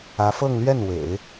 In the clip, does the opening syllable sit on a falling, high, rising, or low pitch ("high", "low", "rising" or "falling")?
rising